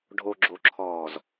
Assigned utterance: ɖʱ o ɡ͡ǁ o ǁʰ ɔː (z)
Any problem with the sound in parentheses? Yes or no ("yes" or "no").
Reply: no